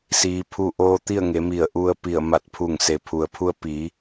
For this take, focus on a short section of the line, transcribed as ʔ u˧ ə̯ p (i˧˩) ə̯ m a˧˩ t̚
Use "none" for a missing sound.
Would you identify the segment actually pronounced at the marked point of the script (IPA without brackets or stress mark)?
i˧˩